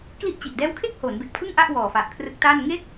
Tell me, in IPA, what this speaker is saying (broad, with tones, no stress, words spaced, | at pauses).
kli˥˩ʔt͡ɕi˨˩ʔ dɛː˦˥wkʰe˥˩k̚ ho˩˦nbe˨˩k̚pʰɯ˥˩ŋ ʔa˥˩ʔ wɔː˨˩fa˨˩ʔkʰrɯ˦˥k̚taː˥˩n ŋe˥˩k̚